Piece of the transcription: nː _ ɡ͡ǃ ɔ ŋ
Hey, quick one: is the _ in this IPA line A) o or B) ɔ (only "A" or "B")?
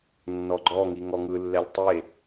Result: B